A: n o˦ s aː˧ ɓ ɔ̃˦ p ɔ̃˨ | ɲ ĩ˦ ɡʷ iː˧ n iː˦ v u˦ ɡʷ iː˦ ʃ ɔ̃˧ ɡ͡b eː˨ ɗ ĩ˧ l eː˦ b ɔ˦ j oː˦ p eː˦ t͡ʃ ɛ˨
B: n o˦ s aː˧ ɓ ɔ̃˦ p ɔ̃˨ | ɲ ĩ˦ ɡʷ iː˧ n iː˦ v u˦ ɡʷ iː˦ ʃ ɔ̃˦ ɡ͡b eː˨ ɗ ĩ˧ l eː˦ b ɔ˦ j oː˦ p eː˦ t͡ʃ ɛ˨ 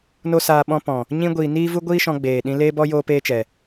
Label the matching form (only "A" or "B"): A